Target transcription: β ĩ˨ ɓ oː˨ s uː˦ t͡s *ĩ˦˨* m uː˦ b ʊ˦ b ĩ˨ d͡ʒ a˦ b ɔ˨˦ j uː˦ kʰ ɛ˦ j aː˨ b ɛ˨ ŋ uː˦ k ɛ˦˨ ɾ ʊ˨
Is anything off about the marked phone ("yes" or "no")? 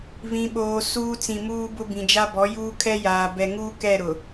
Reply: yes